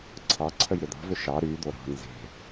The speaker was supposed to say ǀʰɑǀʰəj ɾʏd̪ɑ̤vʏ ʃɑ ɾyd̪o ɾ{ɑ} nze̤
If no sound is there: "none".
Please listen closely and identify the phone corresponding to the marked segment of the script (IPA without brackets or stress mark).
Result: ɑ̤